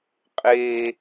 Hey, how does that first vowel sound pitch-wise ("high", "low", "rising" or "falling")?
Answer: high